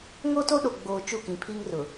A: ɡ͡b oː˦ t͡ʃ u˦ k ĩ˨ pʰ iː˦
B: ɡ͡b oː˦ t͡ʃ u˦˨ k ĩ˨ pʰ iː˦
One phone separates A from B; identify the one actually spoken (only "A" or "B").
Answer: B